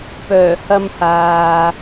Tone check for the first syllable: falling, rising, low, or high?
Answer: low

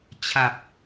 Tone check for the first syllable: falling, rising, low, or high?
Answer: low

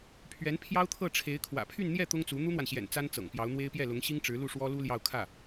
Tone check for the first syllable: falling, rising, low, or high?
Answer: rising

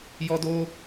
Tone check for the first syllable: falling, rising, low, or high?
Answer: high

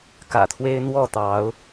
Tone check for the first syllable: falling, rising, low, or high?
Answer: low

